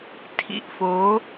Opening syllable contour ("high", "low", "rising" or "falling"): low